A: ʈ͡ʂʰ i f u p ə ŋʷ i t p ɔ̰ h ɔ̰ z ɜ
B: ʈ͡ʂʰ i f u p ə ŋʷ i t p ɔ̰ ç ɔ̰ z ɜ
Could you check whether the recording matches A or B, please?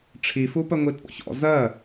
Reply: B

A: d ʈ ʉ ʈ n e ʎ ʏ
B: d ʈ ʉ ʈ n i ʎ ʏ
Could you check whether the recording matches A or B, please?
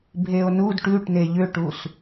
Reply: A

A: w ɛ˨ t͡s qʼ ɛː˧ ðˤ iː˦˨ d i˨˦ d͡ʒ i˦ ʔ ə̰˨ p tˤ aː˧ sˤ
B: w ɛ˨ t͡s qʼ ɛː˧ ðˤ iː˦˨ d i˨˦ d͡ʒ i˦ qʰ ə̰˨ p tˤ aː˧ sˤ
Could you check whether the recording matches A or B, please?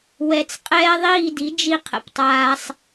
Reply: B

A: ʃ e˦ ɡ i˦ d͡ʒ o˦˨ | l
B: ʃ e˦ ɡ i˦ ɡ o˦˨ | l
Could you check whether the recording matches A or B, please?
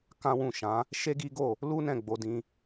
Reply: B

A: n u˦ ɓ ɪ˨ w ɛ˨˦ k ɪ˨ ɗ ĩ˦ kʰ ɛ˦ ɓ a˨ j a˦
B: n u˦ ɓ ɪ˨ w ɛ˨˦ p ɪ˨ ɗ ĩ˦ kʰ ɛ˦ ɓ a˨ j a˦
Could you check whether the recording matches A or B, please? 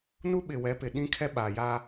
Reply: B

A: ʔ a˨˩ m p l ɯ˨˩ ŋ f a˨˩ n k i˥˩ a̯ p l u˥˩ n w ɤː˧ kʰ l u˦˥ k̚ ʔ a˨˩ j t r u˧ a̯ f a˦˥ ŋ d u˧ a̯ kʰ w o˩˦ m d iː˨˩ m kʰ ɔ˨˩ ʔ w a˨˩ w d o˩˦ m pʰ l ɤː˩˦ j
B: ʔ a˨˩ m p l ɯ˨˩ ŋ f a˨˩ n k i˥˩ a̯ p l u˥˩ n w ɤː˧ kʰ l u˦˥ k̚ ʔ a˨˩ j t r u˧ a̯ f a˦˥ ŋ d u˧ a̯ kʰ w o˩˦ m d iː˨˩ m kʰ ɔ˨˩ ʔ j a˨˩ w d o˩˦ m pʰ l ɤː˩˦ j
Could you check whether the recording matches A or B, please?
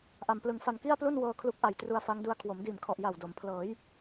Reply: B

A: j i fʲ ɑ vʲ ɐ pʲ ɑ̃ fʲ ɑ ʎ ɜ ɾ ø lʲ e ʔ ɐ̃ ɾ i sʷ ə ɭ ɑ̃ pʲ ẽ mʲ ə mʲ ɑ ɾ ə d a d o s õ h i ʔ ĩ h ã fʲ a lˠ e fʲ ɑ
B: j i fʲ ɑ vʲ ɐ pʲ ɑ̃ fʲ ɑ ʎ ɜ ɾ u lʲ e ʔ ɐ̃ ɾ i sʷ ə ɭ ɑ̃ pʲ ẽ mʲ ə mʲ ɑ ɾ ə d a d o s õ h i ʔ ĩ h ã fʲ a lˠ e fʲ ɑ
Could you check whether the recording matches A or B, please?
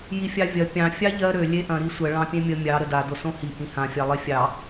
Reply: A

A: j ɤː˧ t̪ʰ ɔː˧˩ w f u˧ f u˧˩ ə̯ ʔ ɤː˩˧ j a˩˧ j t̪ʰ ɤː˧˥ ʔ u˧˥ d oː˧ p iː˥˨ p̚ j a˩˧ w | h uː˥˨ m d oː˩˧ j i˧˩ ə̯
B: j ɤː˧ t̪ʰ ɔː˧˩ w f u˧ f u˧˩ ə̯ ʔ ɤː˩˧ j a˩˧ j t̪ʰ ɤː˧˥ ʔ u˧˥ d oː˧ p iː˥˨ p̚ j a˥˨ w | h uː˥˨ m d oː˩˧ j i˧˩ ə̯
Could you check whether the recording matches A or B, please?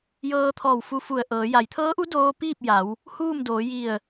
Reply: A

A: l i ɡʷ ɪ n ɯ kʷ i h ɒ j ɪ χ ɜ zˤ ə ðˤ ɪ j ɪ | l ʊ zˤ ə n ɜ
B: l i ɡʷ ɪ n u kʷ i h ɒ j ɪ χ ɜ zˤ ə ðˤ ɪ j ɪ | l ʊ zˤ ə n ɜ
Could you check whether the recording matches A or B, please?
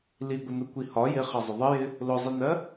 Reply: B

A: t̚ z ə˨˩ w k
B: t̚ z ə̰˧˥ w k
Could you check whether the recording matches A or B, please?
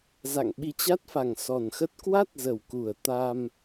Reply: A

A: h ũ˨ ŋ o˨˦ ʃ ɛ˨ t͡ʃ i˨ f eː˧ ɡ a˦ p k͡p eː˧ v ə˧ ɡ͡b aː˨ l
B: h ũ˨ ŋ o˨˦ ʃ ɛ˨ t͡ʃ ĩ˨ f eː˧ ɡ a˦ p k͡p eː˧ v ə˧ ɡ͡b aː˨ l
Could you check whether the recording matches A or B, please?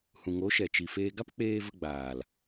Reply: A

